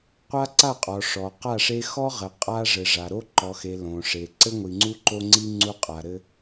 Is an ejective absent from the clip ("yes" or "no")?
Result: no